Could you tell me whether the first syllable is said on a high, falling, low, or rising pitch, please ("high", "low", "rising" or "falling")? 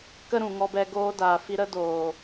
high